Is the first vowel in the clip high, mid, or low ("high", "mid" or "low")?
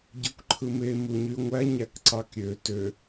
mid